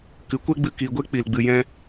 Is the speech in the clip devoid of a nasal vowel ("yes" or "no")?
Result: no